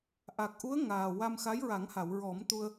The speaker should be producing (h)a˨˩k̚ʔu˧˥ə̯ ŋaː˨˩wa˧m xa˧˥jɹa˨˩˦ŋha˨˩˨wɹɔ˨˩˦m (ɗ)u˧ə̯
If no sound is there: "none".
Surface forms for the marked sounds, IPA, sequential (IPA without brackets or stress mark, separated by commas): ʔ, t̪